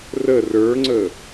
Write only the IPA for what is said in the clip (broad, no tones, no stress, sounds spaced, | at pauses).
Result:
r ə r ə˞ ŋ͡ǀ ə